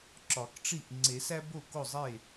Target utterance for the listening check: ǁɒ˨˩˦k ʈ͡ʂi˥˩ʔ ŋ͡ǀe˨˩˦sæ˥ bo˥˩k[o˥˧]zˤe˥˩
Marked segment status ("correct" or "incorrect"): incorrect